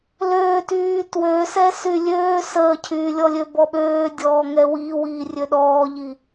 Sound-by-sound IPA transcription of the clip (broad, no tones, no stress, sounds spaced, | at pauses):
l øː t yː t w ø s ɛ s y lʲ øː s əː cʰ yː lʲ ɔ lʲ ø b ɔ ɓ øː dʲ ɔː ŋ ɛ w iː w iː rʲ ø ɗ ɔː ʎ i